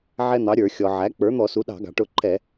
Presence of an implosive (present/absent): present